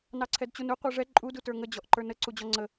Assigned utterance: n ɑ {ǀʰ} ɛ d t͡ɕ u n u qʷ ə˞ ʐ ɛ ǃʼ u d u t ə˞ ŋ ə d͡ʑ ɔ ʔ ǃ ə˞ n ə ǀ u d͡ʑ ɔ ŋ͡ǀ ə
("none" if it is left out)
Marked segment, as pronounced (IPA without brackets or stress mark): ǀʰ